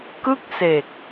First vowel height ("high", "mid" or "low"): high